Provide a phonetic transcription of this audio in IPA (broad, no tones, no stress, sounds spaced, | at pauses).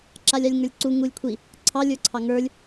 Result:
ǁ a lʲ ɑ lʲ ŋ ə˞ lʲ ǀ u ŋ u lʲ kʷʰ i | ǀʰ ɑ lʲ ə˞ ǀʰ ɑ ŋ ə˞ lʲ